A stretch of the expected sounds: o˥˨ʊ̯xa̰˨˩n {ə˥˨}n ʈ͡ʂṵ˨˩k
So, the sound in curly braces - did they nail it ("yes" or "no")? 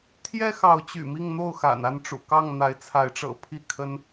no